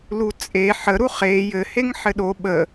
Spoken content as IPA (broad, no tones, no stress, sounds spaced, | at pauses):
l u t͡sʼ e ħ ə ɾ u χ e j ɘ h e ŋ ħ ɘ ɗ o ɓ ə